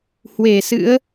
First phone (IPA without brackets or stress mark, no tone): h